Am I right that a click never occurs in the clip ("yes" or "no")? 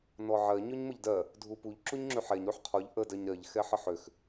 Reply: no